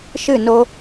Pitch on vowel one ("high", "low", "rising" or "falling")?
falling